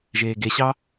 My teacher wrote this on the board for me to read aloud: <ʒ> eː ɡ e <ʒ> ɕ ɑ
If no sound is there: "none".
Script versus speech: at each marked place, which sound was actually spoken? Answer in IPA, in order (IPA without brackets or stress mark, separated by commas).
ʒ, none